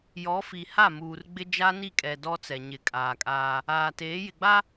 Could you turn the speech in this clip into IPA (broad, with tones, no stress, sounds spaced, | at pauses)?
j ɔ˨˦ f i˨ h a˦˨ m uː˨ r ɡ͡b ɪ˦ d͡ʒ a˦ n i˦˨ kʼ ɛ˨ d ɔ˦ t͡s ɛ˨ ɲ ɪ˨˦ kʼ aː˨ kʼ aː˦ | aː˨ t eː˨˦ j ɪ˨ ɡ͡b a˦